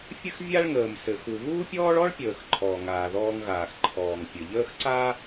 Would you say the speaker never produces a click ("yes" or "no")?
no